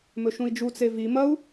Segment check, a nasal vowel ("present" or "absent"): present